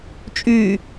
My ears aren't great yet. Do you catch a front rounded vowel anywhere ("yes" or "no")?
yes